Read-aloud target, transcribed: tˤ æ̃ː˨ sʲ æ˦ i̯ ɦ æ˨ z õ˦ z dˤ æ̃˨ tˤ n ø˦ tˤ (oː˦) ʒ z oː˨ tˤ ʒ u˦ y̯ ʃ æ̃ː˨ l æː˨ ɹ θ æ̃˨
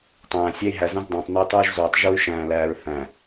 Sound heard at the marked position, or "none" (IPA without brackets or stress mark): uː˦